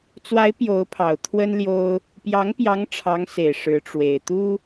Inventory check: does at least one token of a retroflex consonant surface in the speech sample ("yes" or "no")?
yes